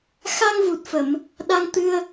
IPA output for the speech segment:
x a˧ ŋ v u˨˩ t̚ f ə˨˩˨ m | ɗ a˧ ŋ t̪ ɨ˧ ə̯

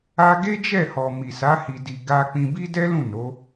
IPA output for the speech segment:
a˦ ɡ e˦ d͡ʒ ɛ˦˨ h ɔ˨ m i˨ s a˨˦ h i˧ d i˧ ɡ a˧ k͡p ĩ˧ b i˦ d ɛ˦ l ũ˦˨ n o˨˦

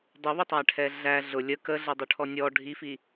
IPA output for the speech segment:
dˤ ʊ β ʊ tˤ æ ʈʰ ɛ ɮ æ ɮ ʊ lʲ ə k ə ɮ ə dˤ u ʈʰ ɔ nʲ ɔ ɖʱ i f i

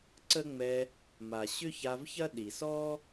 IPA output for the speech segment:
ǀ ə˦ ŋ͡m ɛ˧ | m a˨ ɕ ʏ˦ ç a˧ v ç ɐ˦ ɗ i˨ s ɔː˦

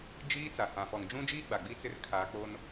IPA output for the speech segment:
d͡ʒ iː˦ t͡s a˨ h ã˨ f ɔ˨ ŋ d͡ʒ ũ˦ d͡ʒ iː˦ ɡ͡b a˨ ɡ͡b i˦ t͡s ɪ˦ r kʰ a˦ k͡p o˦ n

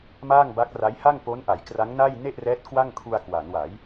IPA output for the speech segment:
m aː˥˩ ŋ b a˦˥ k̚ r a˦˥ j h a˥˩ ŋ p o˦˥ n ʔ a˩˦ j k r a˦˥ ŋ n a˥˩ j n e˥˩ ʔ r ɛː˦˥ t̚ k w a˥˩ ŋ kʰ u˧ a̯ k w a˩˦ n w a˩˦ j

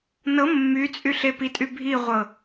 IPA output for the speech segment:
n ɤ mː y t͡sʼ y ɬ e p i tʼ y bʱ i ʁʷ ɤ

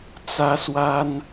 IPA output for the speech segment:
t͡s ä˥ s w a˥ n

